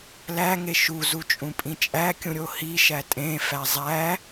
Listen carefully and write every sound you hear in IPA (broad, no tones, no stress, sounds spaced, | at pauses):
l æ ŋ e ʃ u z u t͡ʃʼ ũ pʼ ĩ t͡ʃʼ æ kʲ ũ ɾʲ o h i ʃ æ tʼ ẽ f æ zˤ æ